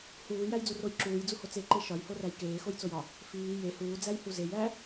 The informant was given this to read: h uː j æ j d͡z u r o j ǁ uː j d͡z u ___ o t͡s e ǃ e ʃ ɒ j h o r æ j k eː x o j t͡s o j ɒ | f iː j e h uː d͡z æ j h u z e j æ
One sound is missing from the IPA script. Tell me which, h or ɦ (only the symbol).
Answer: h